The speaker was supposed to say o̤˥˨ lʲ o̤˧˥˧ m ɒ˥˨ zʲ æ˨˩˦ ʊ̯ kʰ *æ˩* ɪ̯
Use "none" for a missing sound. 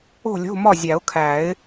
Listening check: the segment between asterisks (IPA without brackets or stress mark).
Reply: æ˨˩˦